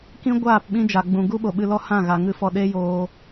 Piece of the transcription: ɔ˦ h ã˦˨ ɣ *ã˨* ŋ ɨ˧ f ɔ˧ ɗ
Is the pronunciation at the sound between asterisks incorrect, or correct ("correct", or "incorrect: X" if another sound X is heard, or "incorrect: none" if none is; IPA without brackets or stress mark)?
incorrect: a˨